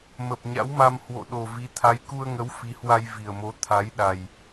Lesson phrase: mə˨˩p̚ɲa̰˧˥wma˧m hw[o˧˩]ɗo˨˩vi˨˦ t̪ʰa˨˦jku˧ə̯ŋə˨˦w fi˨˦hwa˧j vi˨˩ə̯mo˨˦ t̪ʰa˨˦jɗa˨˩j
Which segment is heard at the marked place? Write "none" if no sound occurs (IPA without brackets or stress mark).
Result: o̰˧˨